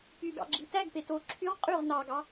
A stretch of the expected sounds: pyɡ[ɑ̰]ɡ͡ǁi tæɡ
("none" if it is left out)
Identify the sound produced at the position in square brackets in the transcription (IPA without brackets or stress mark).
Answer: ɑ̰